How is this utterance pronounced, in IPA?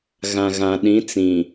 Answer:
ɣ ã˨ ɣ ã˨ ɗ ĩ˨˦ t͡s ĩ˨

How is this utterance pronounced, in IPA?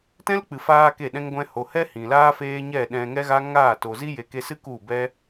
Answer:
t ɛ̃˦ l k͡p ɨ˨ f aː˧ k e˦˨ ɗ ɛ̃˦ ŋ ɡʷ ɛ̃˧ h o˨ h ɛ˦ h ĩ˨ l aː˦ f eː˦ ɲ ɛ˦˨ ɗ ɛ̃˧ ŋ ɛ˦ ɣ a˦ ŋ aː˦˨ t o˨ z i˦ j e˨ k e˧ s ɨ˦ k u˦˨ b ɛ˦

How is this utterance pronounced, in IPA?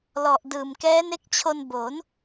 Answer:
l ɔ˨˩ ʔ d ɯː˨˩ m k ɛː˦˥ n e˦˥ k̚ t͡ɕʰ o˧ n b o˩˦ n

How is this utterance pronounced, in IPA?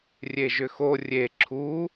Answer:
rʲ e ʒ ʏ x o rʲ e ǁʰ u

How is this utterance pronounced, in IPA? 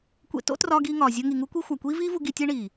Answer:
kʷ ḛ˧ t o̰˦ t r ɒː˧ ɡ iː˧ ŋ ɒː˨ zʲ o˧ ŋ i˨ ŋ u˦ kʷ i˦ xʷ æ˨ kʷ iː˦ v iː˦ v u˧ ɡ i˧ tʲ e˦ ɳ iː˨

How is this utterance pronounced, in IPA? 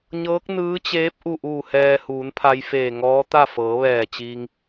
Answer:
ɲ ɤː˧˥ k̚ n ɯː˧˥ t͡ɕ eː˧˥ p̚ ʔ u˧˩ ʔ uː˧˩ h ɛː˧ h uː˩˧ n pʰ a˧ j f eː˧˩ ŋ ɔː˧˥ t̪ a˥˨ f ɤː˩˧ ʋ ɛː˧˩ t͡ɕ iː˧ ŋ

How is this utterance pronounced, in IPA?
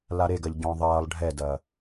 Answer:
l a ɾ e ɡ ɐ ʎ ɟ ɔ̃ ðˤ ɐː lˠ ɖʱ ɛ d ɐː

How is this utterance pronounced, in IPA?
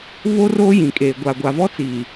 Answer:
β o˦ r oː˦ j ĩ˨ kʼ eː˨ ɡʷ a˨ ɡʷ a˨ v ɔ˦ t͡s iː˨

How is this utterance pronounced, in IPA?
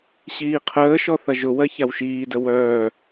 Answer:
ɕ iː qʰ əː ʃ ɔ θ ɐ ʒ ʊ w ɜ ç a w ʃ iː d ə w œː

